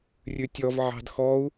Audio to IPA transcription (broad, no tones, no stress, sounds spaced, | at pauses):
rʲ ʉ tʲ ɔ v ʕ ɑ̤ d x ɔ u̯